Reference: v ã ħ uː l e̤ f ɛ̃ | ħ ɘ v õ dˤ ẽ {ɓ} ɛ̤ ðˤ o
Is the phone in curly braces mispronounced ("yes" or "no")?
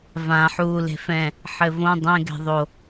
yes